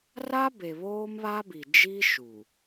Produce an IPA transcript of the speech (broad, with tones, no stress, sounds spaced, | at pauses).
r a˦ b e˨ β oː˦ m β a˦ b i˨ d͡ʒ i˦ ʃ u˨